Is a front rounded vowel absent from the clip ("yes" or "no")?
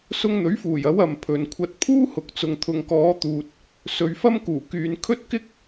no